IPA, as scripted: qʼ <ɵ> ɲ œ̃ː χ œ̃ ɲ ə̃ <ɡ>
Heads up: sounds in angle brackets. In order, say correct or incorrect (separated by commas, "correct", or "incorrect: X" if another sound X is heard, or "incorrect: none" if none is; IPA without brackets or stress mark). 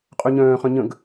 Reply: correct, correct